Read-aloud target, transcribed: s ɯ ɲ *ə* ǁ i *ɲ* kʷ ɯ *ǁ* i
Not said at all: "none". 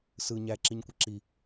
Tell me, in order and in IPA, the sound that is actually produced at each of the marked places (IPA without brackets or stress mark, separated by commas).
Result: æ, ɲ, ǁ